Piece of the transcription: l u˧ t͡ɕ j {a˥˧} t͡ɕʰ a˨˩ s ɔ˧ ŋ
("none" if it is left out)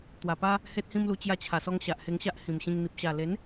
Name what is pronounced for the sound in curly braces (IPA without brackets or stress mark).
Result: a˧